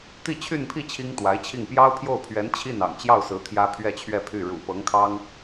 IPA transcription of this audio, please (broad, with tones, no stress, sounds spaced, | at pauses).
t̪ i˥˧ t͡ɕʰ y˥˧ n pʰ i˥˩ t͡ɕʰ i˥ ŋ t̪ w a˧˥ ɪ̯ t͡ɕʰ i˥˩ ŋ p j ɑ˥ ʊ̯ pʰ j o˥˩ ʊ̯ pʰ ɥ ɛ˧˥ n t͡ɕʰ i˥˩ n ɑ̰˨˩ ŋ t͡ɕ j ɑ˥˩ ʊ̯ s ɹ̩˧˥ t̪ʰ j ä˥ pʰ ɥ ɛ˥˧ t͡ɕʰ ɥ ɛ˥˧ pʰ y˥˩ ɻ ṵ˨˩ p ɤ˧˥ ŋ kʰ ɑ˥ ŋ